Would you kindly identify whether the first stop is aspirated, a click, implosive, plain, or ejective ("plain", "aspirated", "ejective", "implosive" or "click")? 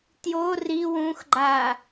plain